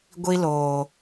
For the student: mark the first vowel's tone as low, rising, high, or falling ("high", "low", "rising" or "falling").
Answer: high